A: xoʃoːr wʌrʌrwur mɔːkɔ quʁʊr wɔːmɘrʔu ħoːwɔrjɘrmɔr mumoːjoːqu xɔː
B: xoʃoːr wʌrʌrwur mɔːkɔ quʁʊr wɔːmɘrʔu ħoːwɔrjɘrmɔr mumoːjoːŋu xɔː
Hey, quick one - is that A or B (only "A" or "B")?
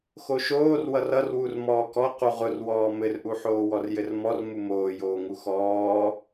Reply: B